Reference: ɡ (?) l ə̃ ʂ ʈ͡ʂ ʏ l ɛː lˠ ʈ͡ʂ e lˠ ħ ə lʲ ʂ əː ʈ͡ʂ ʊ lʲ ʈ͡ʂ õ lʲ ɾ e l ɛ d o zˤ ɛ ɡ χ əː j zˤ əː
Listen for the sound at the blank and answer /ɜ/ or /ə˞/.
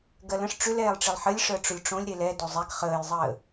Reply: ɜ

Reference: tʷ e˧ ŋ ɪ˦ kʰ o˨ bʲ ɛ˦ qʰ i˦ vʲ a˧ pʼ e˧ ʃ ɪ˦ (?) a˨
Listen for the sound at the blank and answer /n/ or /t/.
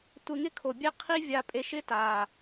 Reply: t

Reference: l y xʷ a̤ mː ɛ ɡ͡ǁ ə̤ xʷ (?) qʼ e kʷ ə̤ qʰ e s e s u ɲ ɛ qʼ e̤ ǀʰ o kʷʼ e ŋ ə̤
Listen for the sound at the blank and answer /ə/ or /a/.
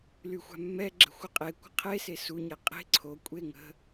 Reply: ə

